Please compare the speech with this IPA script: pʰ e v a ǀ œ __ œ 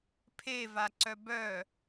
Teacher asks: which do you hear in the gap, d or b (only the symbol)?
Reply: b